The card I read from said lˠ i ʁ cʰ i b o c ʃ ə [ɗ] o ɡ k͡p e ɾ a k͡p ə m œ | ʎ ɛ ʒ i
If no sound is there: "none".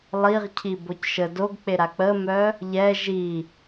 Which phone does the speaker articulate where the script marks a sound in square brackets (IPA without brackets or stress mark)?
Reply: d